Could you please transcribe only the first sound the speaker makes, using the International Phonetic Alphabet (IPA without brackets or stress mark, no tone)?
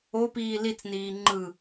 o